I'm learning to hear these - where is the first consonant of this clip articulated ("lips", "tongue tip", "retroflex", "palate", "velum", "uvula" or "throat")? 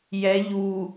palate